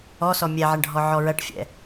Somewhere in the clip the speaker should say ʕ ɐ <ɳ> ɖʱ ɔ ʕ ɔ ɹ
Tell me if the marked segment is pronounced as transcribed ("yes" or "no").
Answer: yes